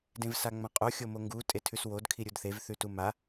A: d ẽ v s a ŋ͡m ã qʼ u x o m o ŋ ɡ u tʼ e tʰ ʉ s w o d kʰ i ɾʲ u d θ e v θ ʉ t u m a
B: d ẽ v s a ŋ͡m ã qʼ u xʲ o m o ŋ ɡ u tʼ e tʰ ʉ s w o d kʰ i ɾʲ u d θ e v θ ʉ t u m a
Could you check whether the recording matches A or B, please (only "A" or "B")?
B